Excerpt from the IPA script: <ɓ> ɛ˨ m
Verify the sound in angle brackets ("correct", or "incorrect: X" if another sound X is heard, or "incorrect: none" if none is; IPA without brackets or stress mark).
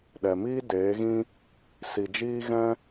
incorrect: ɗ